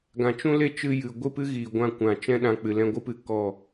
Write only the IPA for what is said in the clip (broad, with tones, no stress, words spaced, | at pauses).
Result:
ɡã˨t͡ʃũ˦le˦t͡ʃɨ˧ jɨ˨ ɡʷɨ˦˨pɨ˦ ɣiː˨ɡʷã˦kʷã˨ t͡ʃɛ̃˦ ɗã˧k͡pɨ˨ lɛ̃˧ɡʷɨ˦pɨ˦˨ kɔ˦˨